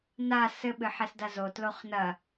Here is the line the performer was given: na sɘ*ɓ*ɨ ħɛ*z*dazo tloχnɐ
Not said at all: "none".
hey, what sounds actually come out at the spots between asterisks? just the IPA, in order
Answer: ɓ, s

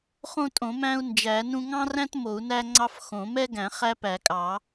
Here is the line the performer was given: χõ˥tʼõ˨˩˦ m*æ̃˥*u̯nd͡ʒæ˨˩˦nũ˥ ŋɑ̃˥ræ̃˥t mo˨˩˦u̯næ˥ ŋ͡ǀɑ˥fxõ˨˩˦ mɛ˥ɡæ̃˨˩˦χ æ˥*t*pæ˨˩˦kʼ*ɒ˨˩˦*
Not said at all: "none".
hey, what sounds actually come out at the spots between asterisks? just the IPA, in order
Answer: æ̃˥, none, ɑ˨˩˦

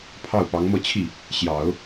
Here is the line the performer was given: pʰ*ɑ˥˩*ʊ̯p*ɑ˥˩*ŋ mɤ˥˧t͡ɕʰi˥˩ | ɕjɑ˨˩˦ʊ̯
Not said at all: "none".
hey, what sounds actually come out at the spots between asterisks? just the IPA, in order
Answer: ɑ˥˩, ɑ˧˥

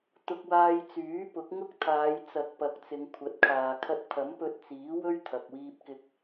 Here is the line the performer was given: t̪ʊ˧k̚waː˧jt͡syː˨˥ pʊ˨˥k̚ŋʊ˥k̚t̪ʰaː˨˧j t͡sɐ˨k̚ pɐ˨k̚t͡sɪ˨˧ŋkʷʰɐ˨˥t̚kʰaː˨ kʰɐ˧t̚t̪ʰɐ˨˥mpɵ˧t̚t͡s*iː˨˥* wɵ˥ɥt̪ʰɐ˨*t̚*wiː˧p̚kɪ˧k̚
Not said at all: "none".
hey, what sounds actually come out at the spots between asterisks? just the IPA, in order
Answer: iː˨˥, k̚

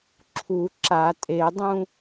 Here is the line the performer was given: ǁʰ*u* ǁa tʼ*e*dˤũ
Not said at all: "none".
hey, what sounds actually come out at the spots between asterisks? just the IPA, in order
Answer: u, e

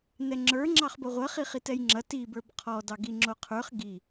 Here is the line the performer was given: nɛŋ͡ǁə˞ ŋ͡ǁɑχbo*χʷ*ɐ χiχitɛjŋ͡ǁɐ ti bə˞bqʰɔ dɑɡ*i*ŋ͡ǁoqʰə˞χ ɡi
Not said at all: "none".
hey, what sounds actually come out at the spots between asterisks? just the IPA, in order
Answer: ʁʷ, i

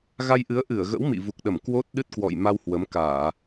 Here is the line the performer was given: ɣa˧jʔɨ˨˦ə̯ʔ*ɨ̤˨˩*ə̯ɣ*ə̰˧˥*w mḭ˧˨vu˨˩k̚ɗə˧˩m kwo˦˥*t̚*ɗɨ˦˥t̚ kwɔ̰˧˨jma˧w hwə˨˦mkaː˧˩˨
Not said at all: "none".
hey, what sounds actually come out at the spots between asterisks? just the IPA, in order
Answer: ɨ˧˩, ə̰˧˥, t̚

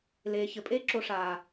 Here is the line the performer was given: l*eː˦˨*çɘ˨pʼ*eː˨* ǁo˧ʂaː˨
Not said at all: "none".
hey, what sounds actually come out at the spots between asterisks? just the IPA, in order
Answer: eː˨, eː˦

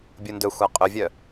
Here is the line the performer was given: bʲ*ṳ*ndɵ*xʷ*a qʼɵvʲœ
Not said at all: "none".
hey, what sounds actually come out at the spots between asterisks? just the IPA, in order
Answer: u, xʷ

